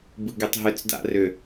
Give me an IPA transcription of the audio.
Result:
b ɯ ɡ e tˤ ɦ ʏ t͡s d a̰ r ʏ

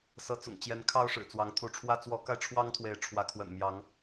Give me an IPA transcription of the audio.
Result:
s ɤ˨˦ t͡s ʊ̰˨˩ ŋ t͡ɕ j ɛ˨˦ n kʰ ɑ˦ ʊ̯ ʂ ɻ̩˨˩ t͡s w ɑ˨˦ ŋ t̪ʰ u˨˦ ʈ͡ʂʰ w ä˦ t͡s w ɔ˨˦ k a˧ ɪ̯ ʈ͡ʂʰ w ɑ˦ ŋ t̪ʰ w e˨˦ ɪ̯ ʈ͡ʂʰ w ä˨˦ kʰ w ə̰˨˩ n m j ɑ˨˦ ŋ

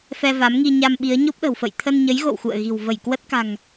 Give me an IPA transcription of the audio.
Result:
f ɛ˧ v a˨˦ m ŋ i˧ ɲ a˧ m ɓ i˨˦ ə̯ ɲ o˦˥ p̚ ɗ ə̤˨˩ w f ə̰˧˨ j t̪ʰ ə˧ n ɲ ə˨˦ j ɣ o̰˧˨ w x ṵ˧˨ ə̯ ɣ i̤˨˩ w v ə˧˩ j k w ə˦˥ t̚ k a̤˨˩ ŋ

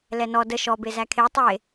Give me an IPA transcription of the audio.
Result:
l ɛ n ɔ d ə ʃ ɔ b e z æ kʰ e tˤ e

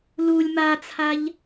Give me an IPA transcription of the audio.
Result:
l u lʲ m a t͡sʰ a ʎ

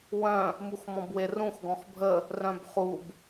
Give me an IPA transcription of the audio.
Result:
w œ̃ | m u x m ɔ̃ b w e r ũ x ɡ ɔ̃ x bʱ ə | r œ̃ b χ u b

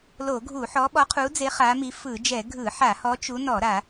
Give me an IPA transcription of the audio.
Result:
l o˧˩˧ ɡʱ u˧˩˧ ħ ɔ˨˦ ɓ ɔ˨˦ qʰ u˨˦ d͡z e˨˦ χ a˨˦ m i˨˦ f ɯ˧˩˧ d͡ʒ ɛ˧˩˧ ɡʱ ɯ˧˩˧ ħ a˧˩˧ h ɔ˨˦ t͡ʃ u˨˦ n ɔ˧˩˧ ɾ a˧˩˧

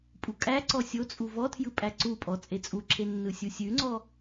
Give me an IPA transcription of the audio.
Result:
pʼ u kʼ æ ǀ ɔ sʲ o t͡sʼ u v ɔ tʰ j ɯ pʼ æ ǀ u pʼ ɔ t͡sʼ e t͡sʼ u ǁʰ e nː ɯ sʲ u sʲ ʉ ŋ͡ǀ ɔ

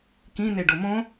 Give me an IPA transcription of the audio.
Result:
k ĩ n̪ e ɖ o m õ

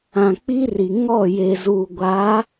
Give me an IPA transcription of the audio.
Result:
ã˨ k͡p i˦ r i˨ ŋ ɔ˦˨ j e˨ z uː˨ ɡʷ a˨˦

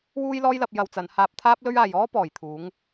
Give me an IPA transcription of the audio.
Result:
w uː˥ j l ɔː˥ j l ɐ˧ p̚ j ɐ˧ w t͡s ɐ˨˧ n h aː˧ p̚ t̪ʰ aː˥ p̚ l ɵ˥ ɥ aː˨ j ɔː˥ p ɔː˨˩ j t̪ʰ uː˨˥ ŋ

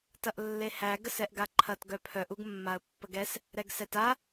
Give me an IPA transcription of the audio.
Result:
t ɐ ʔ lː e h æ ɡ ə s ɛ ʔ ɡ a ǃʰ ɐ t ɡ œ pʰ œ ʔ u ɡ mː a ə̯ pː ə ɡ ɛ s | ɾ ɛ ɡ s ɛ t a

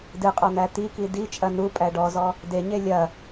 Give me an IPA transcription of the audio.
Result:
d ɨ qʼ ɔ n̪ æ t̪ i k i d i t͡ʃʼ ɐ n u pʼ æ ɖ ɔ z ɔ | d e ɲ e lʲ ɐ

